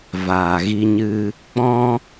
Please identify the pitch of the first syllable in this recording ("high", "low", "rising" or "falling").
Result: low